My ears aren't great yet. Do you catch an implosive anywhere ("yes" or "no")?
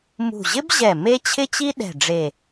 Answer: yes